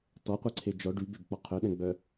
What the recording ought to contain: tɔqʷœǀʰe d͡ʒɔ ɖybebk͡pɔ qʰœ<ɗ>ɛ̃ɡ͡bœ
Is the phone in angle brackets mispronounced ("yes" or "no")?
no